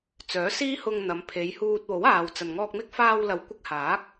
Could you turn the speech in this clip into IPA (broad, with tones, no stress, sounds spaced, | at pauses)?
t͡s œː˨˥ s iː˥ h ʊ˧ ŋ n̪ ɐ˨˧ m pʰ e˨˧ j h uː˧ t̚ w o˨˥ w aː˨ w t͡s ɐ˨ n ŋ ɔː˧ k̚ m ɪ˥ k̚ f aː˧ w l ɐ˨ w kʷ ɪ˧ k̚ h aː˨˥ k̚